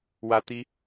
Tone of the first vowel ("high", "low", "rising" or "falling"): high